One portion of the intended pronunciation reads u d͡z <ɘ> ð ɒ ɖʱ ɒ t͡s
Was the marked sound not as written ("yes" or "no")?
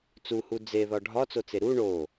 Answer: yes